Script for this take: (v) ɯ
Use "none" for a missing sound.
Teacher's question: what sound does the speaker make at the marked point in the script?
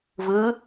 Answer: v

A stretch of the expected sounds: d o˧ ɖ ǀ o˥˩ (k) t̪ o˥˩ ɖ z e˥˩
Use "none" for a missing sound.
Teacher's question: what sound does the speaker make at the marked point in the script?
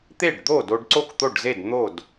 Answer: k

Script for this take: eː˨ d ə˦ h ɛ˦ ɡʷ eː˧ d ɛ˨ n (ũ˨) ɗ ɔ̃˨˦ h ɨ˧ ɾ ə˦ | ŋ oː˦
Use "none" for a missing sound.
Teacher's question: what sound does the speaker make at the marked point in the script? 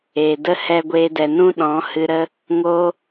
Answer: ũ˦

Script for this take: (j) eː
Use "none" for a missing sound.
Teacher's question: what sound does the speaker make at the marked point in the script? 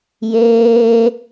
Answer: j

